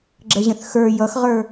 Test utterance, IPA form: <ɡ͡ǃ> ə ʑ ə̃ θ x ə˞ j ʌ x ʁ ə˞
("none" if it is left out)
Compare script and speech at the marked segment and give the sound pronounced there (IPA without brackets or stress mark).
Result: ɡ͡ǁ